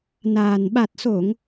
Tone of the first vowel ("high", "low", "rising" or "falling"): low